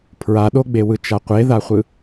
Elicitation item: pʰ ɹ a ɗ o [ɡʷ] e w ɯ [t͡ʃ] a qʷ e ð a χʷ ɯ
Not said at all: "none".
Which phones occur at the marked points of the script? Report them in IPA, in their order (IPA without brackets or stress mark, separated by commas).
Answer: ɡ͡b, t͡ʃ